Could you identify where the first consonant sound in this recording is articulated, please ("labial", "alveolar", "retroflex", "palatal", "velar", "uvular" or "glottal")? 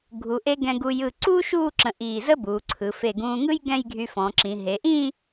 velar